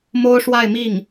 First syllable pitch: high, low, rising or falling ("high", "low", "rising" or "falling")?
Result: high